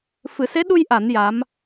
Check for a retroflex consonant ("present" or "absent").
absent